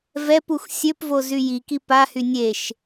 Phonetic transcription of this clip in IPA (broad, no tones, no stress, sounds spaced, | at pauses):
v ɛ p u x sʲ ø p v o z y j i k i p a h y nʲ e ʃ